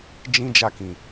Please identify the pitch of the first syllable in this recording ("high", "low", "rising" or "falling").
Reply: high